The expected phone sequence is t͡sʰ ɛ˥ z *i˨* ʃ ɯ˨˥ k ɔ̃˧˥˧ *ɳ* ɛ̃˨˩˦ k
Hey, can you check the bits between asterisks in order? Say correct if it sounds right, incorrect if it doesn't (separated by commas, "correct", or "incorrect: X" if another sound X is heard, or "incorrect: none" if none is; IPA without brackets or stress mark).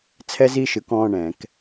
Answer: incorrect: i˧˥˧, correct